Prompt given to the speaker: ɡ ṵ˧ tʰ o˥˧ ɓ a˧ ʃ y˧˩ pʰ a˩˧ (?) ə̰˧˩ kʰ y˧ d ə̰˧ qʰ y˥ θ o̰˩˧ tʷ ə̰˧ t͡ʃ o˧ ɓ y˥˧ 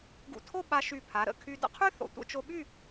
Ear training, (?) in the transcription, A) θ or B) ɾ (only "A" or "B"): B